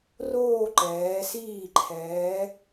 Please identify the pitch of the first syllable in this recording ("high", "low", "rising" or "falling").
falling